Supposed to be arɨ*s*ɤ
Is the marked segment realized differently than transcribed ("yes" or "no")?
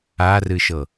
yes